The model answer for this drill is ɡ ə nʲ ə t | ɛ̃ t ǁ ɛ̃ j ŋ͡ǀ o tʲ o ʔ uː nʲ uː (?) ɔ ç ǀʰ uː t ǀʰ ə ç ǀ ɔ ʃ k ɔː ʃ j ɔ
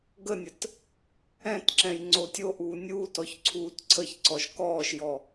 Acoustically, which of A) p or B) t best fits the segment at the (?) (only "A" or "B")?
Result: B